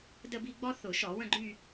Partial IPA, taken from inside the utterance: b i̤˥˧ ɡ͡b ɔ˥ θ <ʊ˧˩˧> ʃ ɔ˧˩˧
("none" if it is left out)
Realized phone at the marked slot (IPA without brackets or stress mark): ʊ˧˩˧